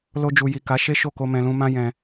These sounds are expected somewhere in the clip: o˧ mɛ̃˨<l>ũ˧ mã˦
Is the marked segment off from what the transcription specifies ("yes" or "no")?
no